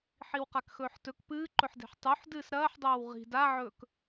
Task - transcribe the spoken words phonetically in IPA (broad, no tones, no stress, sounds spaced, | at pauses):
ħ i w q a k x ɵː ħ t ɵ k p ɨː ǃ ɵ ħ d e̤ ħ tˤ u ħ d ɨː s ɾ ɐː ħ dˤ oː w ʁ i̤ d a ʕ ɵː k